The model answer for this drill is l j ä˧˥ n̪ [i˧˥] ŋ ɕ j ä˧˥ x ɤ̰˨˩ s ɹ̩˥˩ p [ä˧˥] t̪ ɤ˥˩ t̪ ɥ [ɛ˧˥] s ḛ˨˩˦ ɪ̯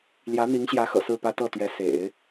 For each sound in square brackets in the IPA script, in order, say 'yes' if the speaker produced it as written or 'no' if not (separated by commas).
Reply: yes, no, yes